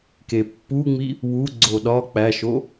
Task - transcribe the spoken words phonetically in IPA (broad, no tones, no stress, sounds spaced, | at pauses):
k e pː u ŋ͡m i | w u ɡ͡ǀ o ɗ ɒ k͡p æ ʃ o